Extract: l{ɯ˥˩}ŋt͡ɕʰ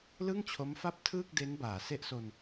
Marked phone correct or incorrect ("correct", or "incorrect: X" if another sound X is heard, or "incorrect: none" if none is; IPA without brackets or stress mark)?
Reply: correct